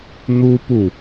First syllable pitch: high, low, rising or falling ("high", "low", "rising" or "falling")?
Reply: high